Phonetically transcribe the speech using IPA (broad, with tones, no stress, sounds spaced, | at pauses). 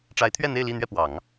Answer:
ʈ͡ʂ a˧˥ ɪ̯ t̪ʰ ɥ ɛ˥˧ n̪ e˥˧ ɪ̯ l i˥˧ n̪ ɥ ɛ˥˩ p w ɑ˨˩˦ ŋ